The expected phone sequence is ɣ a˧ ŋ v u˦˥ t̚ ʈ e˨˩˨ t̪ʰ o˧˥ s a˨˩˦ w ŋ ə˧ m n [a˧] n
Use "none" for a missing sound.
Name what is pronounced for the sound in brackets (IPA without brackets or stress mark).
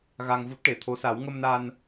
a˧